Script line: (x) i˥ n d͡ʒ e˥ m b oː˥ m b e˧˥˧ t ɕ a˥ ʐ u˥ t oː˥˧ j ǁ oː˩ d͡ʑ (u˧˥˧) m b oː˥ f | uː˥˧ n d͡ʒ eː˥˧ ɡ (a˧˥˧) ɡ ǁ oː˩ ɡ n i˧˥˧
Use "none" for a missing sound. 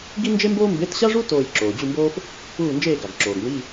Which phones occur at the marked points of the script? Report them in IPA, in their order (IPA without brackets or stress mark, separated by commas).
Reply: ɡ, u˥˧, a˩